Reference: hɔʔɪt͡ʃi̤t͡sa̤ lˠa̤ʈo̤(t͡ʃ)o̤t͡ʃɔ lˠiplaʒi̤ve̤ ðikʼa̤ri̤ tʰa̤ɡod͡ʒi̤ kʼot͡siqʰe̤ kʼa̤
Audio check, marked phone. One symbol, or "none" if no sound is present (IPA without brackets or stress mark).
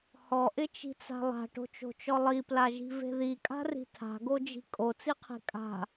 t͡ʃ